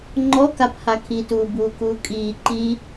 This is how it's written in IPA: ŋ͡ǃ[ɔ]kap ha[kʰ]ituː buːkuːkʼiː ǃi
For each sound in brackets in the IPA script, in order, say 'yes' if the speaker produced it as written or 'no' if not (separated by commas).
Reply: yes, yes